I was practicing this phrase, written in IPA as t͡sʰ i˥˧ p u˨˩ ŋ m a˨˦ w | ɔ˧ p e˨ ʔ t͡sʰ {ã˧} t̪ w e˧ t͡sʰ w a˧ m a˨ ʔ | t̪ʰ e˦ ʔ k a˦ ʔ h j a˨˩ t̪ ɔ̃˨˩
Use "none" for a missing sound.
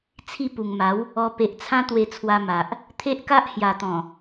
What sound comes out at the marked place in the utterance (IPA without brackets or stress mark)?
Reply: ã˦